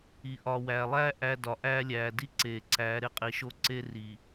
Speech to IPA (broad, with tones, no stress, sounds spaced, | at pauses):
i˨ ʔ ɒː˨ w æː˨ lˠ æː˦ ʔ æ˦ d ɒ˨ ʔ æː˦ lʲ æː˨ d i˦ ǀ eː˨ ǀ æː˨˦ ɾ e˦ qʼ i˨ ʃ o˦ ǀ e˦ r iː˨